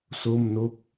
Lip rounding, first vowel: rounded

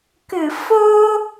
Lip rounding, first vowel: unrounded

